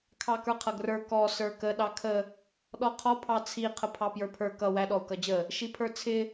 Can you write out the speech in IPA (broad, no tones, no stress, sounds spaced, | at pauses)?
kʰ ɑ k ə˞ qʰ ʌ ɡ r ə˞ k ɔ s ə˞ k ə ɗ ɑ kʰ ə | ɗ ɔ qʰ ɔ pʰ ɑ t͡sʰ i qʰ ə pʰ ɑ p j ə˞ pʰ ə˞ k ʌ w æ ɗ ɔ u̯ k ʌ d͡ʑ ə | ʃ i pʰ ə˞ t͡sʰ ɪ